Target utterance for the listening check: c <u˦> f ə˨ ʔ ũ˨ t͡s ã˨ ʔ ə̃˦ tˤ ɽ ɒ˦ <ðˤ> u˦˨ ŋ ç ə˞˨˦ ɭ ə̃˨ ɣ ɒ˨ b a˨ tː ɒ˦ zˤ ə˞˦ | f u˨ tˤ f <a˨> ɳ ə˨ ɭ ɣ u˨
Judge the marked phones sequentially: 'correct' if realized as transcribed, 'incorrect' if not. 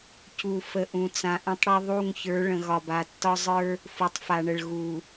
incorrect: u˨, correct, correct

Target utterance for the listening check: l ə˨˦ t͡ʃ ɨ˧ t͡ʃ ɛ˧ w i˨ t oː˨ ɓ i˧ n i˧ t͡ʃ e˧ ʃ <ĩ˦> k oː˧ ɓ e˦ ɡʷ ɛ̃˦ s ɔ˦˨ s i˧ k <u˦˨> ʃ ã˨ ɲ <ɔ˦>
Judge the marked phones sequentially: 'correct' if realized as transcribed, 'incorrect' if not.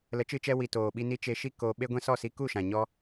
incorrect: i˦, correct, correct

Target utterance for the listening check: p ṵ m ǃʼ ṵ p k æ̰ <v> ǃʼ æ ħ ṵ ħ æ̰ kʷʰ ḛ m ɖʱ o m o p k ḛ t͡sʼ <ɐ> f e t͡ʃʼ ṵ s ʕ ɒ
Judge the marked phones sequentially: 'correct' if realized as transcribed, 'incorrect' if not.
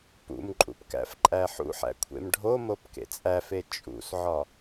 incorrect: f, incorrect: æ

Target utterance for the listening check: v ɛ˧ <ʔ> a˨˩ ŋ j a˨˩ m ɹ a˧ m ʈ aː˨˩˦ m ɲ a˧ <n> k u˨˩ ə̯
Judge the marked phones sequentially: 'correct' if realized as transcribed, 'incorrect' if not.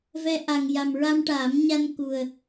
correct, correct

